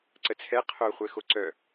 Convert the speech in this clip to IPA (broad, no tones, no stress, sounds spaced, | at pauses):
ǀ ə t͡sʰ ɛ qʰ o χʷ ɛ x o ǀ œ